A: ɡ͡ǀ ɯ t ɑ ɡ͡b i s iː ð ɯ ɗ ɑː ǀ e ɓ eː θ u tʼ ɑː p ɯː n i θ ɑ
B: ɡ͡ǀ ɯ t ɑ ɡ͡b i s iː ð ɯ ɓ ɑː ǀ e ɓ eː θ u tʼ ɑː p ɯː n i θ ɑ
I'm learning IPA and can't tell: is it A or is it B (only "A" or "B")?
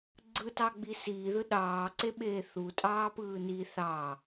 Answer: A